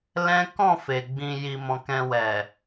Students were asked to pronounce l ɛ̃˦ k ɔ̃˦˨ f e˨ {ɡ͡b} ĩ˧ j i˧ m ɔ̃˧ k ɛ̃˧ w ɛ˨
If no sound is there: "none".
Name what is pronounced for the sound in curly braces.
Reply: ɡ͡b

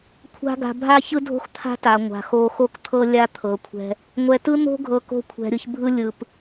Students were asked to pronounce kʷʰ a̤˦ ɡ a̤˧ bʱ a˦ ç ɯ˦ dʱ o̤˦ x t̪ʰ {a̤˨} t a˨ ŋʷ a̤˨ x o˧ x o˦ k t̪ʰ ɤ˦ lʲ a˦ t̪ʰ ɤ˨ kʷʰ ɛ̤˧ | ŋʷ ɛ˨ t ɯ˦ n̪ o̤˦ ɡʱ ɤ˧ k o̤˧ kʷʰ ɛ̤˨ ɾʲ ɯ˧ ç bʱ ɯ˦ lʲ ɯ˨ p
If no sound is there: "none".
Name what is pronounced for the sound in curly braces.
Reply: a̤˦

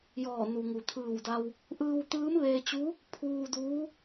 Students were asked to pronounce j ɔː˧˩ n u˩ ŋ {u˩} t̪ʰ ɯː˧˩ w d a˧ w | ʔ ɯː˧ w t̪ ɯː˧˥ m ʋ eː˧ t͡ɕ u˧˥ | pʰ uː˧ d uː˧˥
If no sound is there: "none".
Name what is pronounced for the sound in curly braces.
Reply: u˩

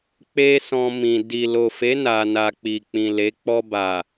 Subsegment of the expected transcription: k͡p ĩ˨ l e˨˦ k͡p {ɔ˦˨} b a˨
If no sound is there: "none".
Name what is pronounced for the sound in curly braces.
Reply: ɔ˧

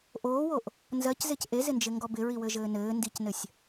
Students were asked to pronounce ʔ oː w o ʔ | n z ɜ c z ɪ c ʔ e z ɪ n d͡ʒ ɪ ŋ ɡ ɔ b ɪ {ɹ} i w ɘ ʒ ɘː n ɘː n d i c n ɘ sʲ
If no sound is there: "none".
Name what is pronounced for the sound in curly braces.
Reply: ɹ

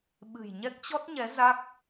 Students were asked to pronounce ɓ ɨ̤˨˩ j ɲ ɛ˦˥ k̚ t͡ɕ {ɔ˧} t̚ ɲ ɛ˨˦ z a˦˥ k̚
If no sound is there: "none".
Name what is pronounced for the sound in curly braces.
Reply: ɔ˦˥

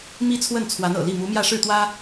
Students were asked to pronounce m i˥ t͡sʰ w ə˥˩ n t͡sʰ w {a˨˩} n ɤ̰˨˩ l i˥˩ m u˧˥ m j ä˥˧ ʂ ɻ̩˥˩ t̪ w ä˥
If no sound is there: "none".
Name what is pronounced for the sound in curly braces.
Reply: a˧˥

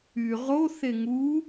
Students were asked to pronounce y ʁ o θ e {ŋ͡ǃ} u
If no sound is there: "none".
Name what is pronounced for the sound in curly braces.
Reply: ŋ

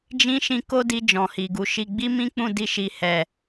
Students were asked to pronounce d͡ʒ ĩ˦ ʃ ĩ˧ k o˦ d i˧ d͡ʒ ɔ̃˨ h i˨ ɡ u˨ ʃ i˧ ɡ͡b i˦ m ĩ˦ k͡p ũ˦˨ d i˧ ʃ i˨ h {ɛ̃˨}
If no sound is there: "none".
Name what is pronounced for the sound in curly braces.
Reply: ɛ˨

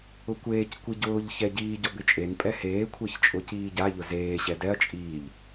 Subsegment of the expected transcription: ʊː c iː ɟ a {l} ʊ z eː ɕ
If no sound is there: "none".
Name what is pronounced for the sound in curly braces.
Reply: ʎ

